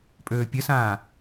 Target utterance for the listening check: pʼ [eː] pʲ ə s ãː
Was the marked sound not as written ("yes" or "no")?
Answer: yes